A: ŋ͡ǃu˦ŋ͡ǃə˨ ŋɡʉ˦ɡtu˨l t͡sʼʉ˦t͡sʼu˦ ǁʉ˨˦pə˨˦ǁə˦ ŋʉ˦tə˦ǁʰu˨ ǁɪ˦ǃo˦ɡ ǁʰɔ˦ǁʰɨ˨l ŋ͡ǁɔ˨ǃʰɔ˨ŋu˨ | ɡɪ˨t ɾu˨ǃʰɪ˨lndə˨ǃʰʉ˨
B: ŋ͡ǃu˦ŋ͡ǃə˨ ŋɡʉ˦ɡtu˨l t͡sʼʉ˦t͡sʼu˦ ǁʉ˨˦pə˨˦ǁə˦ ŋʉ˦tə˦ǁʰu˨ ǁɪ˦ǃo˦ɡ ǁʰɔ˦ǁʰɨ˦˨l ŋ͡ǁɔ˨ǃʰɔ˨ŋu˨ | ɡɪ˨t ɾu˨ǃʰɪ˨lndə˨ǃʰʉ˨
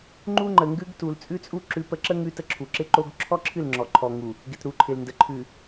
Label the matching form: B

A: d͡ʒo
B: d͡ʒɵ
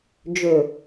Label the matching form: B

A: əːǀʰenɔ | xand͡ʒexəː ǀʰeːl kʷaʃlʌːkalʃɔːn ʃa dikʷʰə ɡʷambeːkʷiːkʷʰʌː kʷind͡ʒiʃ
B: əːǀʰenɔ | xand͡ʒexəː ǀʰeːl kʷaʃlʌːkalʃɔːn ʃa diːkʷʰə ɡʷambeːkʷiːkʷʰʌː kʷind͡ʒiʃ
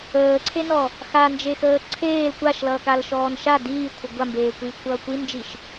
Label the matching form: B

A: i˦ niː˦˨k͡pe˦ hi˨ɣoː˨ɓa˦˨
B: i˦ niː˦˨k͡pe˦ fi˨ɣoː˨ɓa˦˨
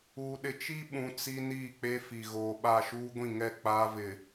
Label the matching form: B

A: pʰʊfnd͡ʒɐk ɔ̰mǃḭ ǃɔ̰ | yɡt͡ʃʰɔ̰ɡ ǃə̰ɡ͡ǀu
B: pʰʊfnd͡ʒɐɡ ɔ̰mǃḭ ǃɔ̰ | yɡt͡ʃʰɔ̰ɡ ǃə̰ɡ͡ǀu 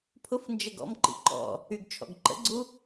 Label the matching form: B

